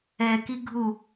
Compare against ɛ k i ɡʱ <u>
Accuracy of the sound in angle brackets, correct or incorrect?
correct